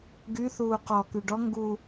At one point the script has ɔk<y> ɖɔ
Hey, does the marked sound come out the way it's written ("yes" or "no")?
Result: yes